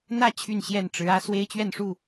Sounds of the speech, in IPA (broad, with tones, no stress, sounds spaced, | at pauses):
n̪ ä˥˨ t͡ɕʰ y˥˨ n ɕ j ɛ˥˨ n ʈ͡ʂ ɻ̩˨˦ ä˦ s w e˦ ɪ̯ t͡ɕ ɥ ɛ˥˨ n ʂ u˥˨